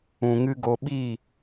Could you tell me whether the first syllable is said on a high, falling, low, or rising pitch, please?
low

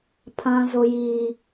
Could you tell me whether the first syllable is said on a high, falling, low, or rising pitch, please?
high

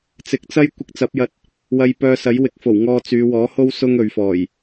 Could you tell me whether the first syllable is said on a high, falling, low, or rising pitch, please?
low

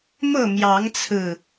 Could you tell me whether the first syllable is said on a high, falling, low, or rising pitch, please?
falling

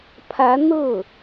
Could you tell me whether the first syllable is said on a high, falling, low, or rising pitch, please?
rising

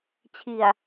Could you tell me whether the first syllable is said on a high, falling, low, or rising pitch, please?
low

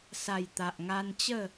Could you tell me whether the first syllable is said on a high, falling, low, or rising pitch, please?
low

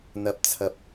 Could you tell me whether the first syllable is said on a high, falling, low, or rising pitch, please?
low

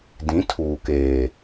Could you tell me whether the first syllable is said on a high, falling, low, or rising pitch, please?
rising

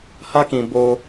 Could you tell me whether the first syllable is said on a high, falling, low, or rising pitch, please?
high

